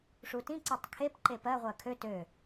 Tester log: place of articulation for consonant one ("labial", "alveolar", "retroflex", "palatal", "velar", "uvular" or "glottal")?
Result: retroflex